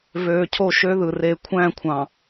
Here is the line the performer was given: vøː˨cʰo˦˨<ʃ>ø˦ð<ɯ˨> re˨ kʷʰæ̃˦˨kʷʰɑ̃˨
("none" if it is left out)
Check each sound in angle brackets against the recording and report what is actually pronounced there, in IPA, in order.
ʃ, ɯ˨

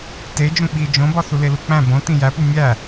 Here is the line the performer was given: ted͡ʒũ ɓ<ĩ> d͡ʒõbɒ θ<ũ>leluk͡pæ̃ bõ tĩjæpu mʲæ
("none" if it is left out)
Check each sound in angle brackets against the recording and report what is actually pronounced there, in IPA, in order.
i, u

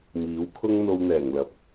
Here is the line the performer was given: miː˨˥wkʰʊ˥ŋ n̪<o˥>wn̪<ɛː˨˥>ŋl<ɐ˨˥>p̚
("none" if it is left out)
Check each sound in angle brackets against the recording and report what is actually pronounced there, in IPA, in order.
o˥, ɛː˨˩, ɐ˨˥

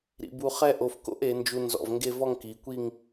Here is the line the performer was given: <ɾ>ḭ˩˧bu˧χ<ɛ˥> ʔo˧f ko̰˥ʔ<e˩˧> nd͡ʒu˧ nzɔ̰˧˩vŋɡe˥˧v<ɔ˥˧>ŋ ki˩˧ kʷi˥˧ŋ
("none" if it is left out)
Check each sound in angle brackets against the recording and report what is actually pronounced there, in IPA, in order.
ɾ, ɛ˥, e˩˧, ɔ˥˧

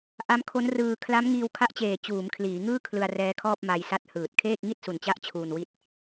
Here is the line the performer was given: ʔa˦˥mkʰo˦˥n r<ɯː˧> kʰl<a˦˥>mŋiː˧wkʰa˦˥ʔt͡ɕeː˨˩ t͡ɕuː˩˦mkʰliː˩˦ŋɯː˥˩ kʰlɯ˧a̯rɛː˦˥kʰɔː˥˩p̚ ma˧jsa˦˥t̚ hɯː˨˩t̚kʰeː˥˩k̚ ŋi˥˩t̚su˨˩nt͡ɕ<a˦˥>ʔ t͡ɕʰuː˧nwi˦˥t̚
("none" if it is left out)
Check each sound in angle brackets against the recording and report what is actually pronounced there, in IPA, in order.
ɯː˧, a˦˥, a˦˥

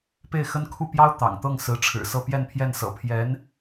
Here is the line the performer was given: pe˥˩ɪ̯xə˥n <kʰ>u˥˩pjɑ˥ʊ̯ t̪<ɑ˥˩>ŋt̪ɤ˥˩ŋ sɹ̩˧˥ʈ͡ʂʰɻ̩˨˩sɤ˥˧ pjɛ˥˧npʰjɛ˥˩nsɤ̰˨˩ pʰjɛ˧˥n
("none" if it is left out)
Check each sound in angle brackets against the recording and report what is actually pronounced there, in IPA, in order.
kʰ, ɑ̰˨˩

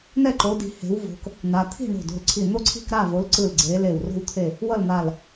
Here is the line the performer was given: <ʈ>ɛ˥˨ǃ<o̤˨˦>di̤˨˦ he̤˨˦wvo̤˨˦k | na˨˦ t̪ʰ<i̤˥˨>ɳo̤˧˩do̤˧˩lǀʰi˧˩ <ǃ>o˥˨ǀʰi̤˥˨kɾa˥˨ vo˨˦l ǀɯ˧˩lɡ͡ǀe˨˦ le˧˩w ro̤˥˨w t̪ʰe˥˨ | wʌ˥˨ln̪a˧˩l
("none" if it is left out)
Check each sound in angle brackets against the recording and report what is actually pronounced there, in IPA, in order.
n, o˨˦, i̤˥˨, n̪

